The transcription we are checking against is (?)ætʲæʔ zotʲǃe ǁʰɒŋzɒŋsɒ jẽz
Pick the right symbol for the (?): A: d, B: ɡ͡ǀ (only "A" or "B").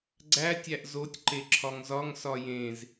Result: B